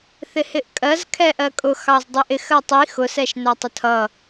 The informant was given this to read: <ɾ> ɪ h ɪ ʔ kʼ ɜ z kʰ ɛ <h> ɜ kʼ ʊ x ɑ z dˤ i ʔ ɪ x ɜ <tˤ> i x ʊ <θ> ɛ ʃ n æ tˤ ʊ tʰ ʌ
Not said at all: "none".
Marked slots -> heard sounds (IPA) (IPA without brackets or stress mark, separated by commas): θ, ʔ, tˤ, s